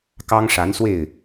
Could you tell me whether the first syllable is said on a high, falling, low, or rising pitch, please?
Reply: high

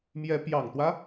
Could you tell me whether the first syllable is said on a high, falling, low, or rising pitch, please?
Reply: rising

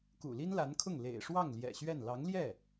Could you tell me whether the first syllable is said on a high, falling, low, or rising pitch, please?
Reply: low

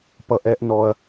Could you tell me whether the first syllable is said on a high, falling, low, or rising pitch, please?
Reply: low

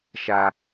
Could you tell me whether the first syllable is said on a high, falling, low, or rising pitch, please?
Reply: low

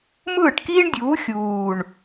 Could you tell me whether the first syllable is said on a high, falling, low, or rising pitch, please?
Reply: falling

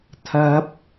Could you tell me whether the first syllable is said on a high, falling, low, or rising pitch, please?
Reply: high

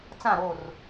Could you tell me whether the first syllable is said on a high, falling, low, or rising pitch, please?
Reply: falling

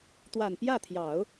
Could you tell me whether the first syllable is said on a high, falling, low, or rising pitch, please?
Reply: low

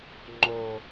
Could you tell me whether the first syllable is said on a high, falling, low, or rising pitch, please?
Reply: low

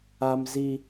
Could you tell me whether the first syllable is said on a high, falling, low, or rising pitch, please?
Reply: high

